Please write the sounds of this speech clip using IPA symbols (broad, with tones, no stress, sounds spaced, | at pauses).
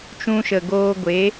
t͡ʃ ũ˦ ʃ ə˨ ɡ oː˦ ɡʷ e˨˦